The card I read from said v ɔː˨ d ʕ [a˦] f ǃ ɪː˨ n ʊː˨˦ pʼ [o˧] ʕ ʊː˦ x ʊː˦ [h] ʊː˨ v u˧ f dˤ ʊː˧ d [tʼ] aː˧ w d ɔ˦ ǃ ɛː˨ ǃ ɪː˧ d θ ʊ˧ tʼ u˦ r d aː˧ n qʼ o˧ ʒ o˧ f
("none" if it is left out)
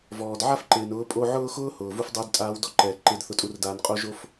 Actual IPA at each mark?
a˦, o˧, h, tʼ

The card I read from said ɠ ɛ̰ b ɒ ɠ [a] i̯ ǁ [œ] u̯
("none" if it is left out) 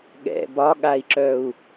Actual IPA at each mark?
a, œ

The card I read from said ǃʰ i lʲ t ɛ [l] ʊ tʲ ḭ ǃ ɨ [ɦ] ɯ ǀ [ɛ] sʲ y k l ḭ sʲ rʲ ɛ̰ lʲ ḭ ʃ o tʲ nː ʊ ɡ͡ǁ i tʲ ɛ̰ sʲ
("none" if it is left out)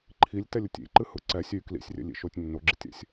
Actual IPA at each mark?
lʲ, h, ɛ

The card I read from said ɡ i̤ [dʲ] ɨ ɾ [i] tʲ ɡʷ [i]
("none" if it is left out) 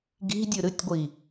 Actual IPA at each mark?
dʲ, ɨ, i

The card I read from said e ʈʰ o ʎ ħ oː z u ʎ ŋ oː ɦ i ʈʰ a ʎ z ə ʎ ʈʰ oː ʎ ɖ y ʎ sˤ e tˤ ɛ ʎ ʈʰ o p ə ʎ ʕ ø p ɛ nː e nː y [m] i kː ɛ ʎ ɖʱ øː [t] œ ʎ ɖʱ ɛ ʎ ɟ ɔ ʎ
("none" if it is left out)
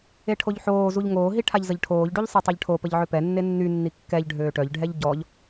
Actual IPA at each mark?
nː, ʈ

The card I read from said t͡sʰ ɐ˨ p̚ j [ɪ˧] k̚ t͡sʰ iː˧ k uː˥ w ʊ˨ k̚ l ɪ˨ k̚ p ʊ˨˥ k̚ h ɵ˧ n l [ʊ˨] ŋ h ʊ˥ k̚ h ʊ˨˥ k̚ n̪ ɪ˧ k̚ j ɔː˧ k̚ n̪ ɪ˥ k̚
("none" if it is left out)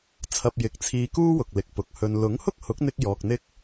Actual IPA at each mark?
ɪ˨, ʊ˨˥

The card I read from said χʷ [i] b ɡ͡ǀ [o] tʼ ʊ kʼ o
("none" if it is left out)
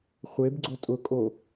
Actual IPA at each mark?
e, o

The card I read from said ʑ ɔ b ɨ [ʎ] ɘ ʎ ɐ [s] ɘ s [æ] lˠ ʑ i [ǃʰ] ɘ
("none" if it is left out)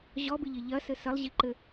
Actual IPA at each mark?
ʎ, s, ɐ, ǃ

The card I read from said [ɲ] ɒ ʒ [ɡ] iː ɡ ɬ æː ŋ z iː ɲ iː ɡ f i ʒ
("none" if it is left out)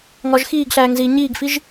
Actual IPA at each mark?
ŋ, x

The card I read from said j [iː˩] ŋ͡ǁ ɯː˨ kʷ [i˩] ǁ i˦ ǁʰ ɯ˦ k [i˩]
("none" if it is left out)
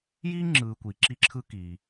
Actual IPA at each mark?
iː˥, i˩, iː˩

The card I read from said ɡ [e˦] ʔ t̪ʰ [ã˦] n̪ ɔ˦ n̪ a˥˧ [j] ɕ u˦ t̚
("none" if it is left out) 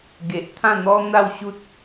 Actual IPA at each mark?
e˨, ã˥˧, w

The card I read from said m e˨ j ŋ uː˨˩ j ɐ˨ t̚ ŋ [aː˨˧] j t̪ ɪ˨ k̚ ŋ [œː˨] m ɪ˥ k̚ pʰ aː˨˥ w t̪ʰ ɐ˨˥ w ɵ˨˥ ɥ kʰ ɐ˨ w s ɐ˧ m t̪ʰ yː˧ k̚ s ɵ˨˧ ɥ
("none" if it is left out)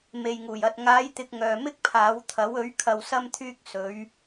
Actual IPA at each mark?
aː˨˧, œː˨

